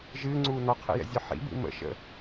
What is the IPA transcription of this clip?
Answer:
ʒ ɨː ŋ͡ǀ uː n ɔ qʰ ɛ̰ j ɛ̰ zʲ ɔ ħ ḭ b ḭ m ə̰ ʃ ə̰

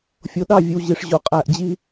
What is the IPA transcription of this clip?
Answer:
fʲ o˨ ɗ ɑ˦˨ vʲ ɨ˨ w ʑ i˨ ʂ ʑ o˨ qʼ æ˨ ʔ d͡ʑ i˦

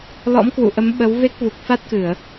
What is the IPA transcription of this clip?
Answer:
l ɔ̰˧˥ m k w ṵ˧˨ ʔ ə˨˦ m ɓ ə˨˦ w v e˦˥ k̚ v u˨˩ k̚ f a˦˥ t̚ k ɨ˧˩˨ ə̯

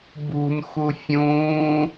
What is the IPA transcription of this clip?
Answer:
b ṳ n x u fʲ ũː

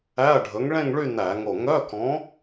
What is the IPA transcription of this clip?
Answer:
æ˧˥˧ ɐ̯ ɖʱ ɵ˨˥ ŋ ɭ ẽ˥˧ ŋ ɭ y˥˧ n æ˧˩˧ ŋ o˧˩ ŋ œ˧˥˧ k ɔ̃˨˥

